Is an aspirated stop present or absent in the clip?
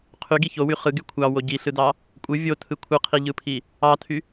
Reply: present